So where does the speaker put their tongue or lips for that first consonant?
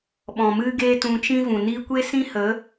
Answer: lips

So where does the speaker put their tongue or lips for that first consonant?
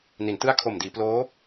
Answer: tongue tip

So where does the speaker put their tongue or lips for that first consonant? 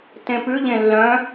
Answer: tongue tip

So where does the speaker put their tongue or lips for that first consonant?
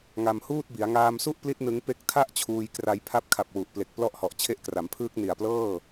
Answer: velum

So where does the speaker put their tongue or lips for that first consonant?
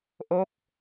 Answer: throat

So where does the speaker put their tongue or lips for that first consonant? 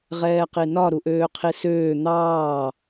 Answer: uvula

